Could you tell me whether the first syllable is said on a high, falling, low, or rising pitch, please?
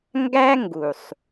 high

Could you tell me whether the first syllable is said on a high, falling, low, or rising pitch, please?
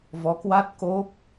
rising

